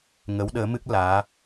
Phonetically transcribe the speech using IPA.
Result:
ŋ ə˨˦ w ɗ əː˨˦ m ɨ˦˥ k̚ l aː˨˦

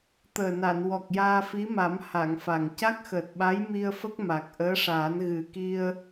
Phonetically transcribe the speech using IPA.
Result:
t̪ əː˨˩ n a˨˩˨ n w ɔ˨˩ k̚ j aː˧ f i˧˥ m a˨˩˦ m h a˨˩˨ ŋ f a˨˩ ŋ c a˦˥ k̚ x əː˨˩ t̚ ɓ a˧˥ j m i˧ ə̯ f ə˦˥ k̚ m a˨˩ k̚ ʔ əː˧˥ ʂ aː˨˩˦ n ɣ ɨ˨˩ k i˧ ə̯

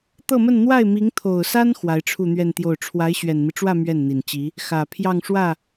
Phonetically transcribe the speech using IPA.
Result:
t̪ ɤ˥˧ m ə˥˧ n n̪ w a˥˩ ɪ̯ m i˧˥ ŋ t̪ʰ o˨˩ ʊ̯ s a˥ n x w a˧˥ ɪ̯ ʈ͡ʂʰ u˥˧ n̪ ɥ ɛ˥˧ n t̪ j o˥˩ ʊ̯ ʈ͡ʂʰ w a˧˥ ɪ̯ ɕ ɥ ɛ˨˩ n m i˦ ʈ͡ʂ w ä˥˧ m ɥ ɛ˥˩ n n̪ i˨˩ n t͡ɕ i˧˥ | x ä˨˩ pʰ j ɑ˥˧ ŋ ʂ w ä˥˩

